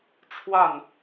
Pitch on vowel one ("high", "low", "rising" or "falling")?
falling